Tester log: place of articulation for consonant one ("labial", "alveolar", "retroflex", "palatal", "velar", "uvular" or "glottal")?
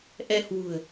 glottal